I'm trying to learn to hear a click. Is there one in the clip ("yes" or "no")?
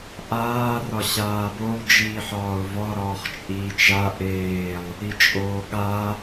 no